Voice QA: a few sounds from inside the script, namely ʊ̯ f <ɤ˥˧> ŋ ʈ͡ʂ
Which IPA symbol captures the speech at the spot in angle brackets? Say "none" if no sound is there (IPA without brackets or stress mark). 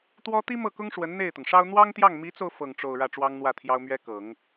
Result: ɤ˥˧